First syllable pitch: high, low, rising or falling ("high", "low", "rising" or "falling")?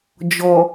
low